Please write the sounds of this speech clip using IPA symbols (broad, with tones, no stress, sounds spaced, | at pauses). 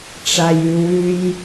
ʈ͡ʂ a˨ j ʉ˨ w ʉ˦ j